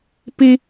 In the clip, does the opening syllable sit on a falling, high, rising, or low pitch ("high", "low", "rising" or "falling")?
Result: high